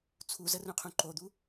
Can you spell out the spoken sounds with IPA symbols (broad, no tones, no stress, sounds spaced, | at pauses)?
t͡sʰ u z ə r ũ qʰ ũ ǃ o d̪ u